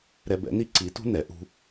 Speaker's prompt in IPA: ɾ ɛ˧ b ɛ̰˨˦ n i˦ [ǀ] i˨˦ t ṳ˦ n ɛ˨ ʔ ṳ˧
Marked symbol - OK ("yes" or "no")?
yes